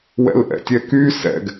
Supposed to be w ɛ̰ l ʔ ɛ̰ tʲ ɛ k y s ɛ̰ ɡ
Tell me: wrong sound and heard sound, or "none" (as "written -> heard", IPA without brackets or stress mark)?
none